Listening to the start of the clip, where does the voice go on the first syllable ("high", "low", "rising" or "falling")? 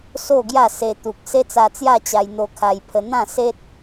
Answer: falling